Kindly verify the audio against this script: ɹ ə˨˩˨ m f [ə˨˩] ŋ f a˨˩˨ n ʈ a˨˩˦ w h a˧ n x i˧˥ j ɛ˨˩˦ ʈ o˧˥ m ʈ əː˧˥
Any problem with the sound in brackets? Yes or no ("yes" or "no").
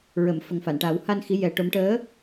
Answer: no